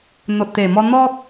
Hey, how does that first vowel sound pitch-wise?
low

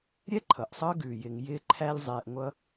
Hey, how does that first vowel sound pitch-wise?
high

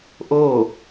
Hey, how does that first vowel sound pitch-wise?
falling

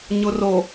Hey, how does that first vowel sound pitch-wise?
low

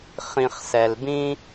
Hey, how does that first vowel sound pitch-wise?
low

